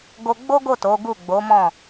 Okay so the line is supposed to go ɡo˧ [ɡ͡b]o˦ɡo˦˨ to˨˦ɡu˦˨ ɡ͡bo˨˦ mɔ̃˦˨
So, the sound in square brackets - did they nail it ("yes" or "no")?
yes